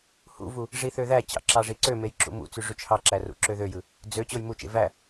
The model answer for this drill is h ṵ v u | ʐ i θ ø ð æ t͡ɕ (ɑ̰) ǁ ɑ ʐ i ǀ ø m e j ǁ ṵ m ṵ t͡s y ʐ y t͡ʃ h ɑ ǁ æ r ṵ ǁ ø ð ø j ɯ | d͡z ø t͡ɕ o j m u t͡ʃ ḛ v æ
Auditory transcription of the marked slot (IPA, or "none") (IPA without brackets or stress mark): ɑ̰